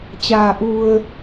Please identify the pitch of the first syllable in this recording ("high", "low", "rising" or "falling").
low